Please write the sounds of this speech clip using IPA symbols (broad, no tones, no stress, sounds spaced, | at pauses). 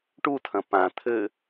ʈ u tʰ ɐ̃ p ã t̪ʰ ɘ